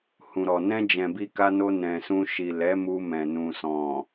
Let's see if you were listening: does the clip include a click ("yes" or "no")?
no